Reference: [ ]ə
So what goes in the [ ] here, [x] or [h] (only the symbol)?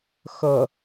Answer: x